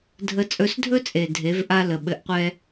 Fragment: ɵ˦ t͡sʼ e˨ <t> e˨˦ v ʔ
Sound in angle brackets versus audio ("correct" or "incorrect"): incorrect